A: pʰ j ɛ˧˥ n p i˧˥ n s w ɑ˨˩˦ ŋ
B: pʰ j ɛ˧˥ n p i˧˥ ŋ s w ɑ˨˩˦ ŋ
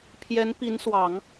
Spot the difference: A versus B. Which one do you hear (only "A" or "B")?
A